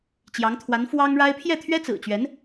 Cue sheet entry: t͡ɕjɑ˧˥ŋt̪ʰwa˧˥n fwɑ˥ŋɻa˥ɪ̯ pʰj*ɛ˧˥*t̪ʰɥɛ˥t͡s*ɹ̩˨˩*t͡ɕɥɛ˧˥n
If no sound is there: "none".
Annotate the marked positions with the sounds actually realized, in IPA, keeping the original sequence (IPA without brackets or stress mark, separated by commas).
ɛ˥˩, ɹ̩˨˩